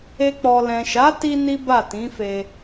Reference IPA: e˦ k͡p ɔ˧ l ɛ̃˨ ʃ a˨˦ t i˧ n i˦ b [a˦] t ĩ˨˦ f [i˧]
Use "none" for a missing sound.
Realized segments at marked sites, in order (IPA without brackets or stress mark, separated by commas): a˦˨, e˧